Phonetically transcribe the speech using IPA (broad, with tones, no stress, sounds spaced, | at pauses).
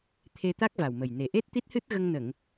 t̪ʰ e˧ t̪ a˦˥ k̚ v a˨˩ w m ə˨˩ j n e˨˩ ʔ e˦˥ t̚ t̪ i˦˥ t̚ h ɨ˦˥ t̚ ɣ ə˧ ŋ n ə˨˩˨ ŋ